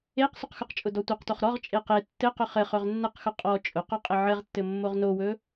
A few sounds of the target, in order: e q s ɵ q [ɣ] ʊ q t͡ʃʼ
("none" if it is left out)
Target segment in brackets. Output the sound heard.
x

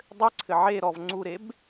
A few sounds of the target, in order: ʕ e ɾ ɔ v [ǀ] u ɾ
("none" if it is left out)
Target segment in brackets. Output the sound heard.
ŋ͡ǀ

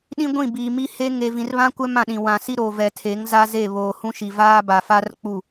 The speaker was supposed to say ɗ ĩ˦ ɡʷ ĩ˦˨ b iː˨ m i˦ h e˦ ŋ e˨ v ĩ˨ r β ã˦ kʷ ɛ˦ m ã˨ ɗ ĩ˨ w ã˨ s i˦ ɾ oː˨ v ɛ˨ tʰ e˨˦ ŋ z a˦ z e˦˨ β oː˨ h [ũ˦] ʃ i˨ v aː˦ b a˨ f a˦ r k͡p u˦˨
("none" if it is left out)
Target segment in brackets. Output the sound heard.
ũ˦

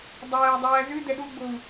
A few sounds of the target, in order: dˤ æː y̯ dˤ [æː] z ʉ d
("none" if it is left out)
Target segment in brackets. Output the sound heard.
æː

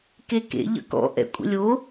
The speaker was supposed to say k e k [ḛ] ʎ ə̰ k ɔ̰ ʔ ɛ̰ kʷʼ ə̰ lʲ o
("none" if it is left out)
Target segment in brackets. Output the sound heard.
ḛ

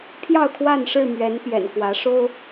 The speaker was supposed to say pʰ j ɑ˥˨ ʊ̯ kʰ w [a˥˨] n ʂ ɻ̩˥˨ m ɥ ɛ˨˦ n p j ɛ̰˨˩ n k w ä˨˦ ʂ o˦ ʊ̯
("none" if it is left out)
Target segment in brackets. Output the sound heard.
a˥˨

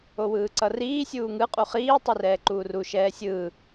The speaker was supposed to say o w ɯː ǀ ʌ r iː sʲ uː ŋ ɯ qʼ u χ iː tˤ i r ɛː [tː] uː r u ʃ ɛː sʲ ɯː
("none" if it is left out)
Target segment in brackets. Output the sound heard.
ǃ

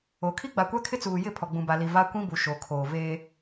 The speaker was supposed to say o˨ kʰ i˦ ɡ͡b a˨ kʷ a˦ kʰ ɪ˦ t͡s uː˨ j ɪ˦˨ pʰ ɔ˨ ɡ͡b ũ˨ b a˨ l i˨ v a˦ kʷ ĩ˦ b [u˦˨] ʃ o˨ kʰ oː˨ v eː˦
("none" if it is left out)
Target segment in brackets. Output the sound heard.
u˨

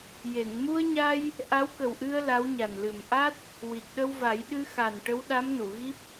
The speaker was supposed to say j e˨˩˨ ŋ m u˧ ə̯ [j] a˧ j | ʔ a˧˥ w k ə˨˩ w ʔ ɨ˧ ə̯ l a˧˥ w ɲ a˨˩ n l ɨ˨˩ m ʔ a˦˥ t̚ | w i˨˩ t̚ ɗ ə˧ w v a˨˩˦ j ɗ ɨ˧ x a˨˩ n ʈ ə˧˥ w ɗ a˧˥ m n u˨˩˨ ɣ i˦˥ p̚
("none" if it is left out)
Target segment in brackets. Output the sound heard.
ɲ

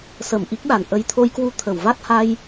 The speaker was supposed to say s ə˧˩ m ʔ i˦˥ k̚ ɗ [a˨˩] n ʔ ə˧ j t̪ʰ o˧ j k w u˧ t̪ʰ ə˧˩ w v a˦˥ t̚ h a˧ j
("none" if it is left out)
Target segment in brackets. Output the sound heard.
a˨˩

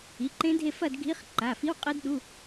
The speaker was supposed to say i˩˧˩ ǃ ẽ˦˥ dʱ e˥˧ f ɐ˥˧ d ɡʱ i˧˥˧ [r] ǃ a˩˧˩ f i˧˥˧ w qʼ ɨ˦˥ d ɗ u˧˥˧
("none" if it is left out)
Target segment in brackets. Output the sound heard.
χ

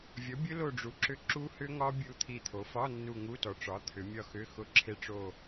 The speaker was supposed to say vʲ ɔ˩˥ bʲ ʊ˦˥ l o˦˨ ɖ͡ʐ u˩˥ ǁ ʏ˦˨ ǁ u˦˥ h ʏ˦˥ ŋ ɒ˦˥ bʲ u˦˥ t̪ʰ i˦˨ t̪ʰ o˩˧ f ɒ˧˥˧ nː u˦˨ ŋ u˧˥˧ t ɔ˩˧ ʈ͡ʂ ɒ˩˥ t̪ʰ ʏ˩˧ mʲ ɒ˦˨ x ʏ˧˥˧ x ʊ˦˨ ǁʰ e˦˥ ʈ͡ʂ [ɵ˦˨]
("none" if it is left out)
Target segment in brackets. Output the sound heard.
o˦˨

